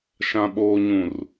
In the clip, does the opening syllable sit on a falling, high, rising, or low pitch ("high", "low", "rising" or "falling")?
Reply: low